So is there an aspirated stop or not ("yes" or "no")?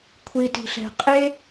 yes